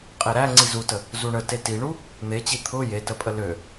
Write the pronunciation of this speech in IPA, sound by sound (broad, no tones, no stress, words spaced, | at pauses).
qʼeɾæ ŋ͡ǀizutə | zuɳə tetiɳu | n̪et͡ɕi t̪ʰʊ jetəpʼə lø